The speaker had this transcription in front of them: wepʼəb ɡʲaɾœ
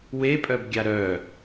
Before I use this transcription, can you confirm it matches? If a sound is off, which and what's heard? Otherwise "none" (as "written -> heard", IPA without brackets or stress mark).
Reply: ə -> œ